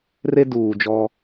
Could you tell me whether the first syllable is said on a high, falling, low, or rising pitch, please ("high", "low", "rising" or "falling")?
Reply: high